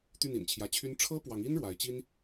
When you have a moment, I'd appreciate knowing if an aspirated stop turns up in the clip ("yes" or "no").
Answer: yes